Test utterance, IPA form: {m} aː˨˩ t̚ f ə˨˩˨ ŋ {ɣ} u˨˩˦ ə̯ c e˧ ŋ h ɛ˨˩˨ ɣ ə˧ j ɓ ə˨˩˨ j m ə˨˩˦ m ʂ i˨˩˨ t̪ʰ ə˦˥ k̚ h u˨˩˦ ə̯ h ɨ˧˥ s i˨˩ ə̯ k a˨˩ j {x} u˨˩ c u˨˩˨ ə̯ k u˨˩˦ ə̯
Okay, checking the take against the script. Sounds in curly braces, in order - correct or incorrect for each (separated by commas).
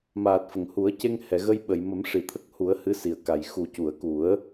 correct, incorrect, correct